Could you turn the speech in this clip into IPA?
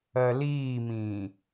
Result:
ɜliːmĩː

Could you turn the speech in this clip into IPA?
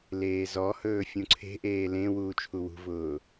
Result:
leːzɔhɵː fʲũǀʰe̤ʔeː lẽ wuːt͡ʃʰuwṳvʊː

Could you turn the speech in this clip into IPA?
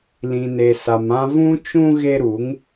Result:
lĩ˨ne˨sa˨mã˦ vũ˦t͡ʃũ˦ ɣe˦ɾu˨˦ŋ

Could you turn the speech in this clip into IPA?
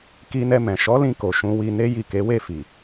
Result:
ki˧nɛ˧mɛ̃˨ ʃɔ˨˦lĩ˧ko˨ ʃũ˧wi˧ ne˦ji˦˨ke˨˦ we˦˨fi˨

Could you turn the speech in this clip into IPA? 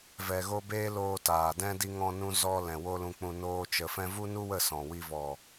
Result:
vɛ˨ɣo˧ beː˦loː˧ taː˨dɛ̃˦ di˧ŋɔ̃˧nũ˧ zɔ˧ lɛ̃˨wo˦lũ˧k͡pũ˧ noː˦t͡ʃə˧ fɛ̃˦ vu˦nu˦wə˦˨ sɔ̃˨wi˧ vɔ˨

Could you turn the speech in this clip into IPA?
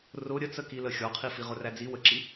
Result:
rʊ ɾʲət͡səki ləxʲɔqʰi fiʁʊræd͡zi wəǁi

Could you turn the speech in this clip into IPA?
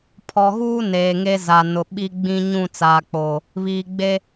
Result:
pʰɔ˨ɣuː˦ neː˨ŋe˦ za˨ nʊ˨ ɓi˦ɡ͡bĩ˦ ɲũ˦˨t͡saː˨k͡poː˨ | βiː˨ɡ͡be˦

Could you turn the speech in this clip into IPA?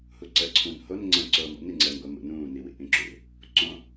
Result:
huǀəːǀʰũːnhon ŋ͡ǀə̃ ǀoːmo̰n iŋ͡ǀəːnɡʷəːmṵ nũːniwḭ ʔĩǁṵ | ǀõ

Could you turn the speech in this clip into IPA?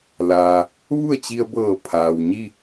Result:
laː˩ | ʋu˥˨ə̯t͡ɕi˧ə̯bɤː˧˩ pʰaː˩wɲi˥˨

